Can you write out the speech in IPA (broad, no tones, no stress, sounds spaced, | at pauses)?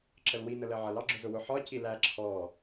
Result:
ǁ ə l w i n ə l ɜ ʕ ʌ l ɑ ɡ͡ǁ ʊ z ʊ w ʊ ħ ɒ c i l æ ǁʰ ɔː